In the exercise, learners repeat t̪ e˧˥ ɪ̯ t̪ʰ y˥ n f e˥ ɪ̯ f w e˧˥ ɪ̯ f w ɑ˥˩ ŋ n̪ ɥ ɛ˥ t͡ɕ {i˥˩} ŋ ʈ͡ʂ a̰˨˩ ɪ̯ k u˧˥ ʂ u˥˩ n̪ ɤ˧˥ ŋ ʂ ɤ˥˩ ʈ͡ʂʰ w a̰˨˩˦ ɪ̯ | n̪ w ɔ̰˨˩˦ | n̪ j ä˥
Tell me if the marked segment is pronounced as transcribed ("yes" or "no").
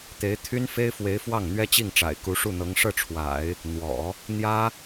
yes